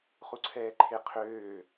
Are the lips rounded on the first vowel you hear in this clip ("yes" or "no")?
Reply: yes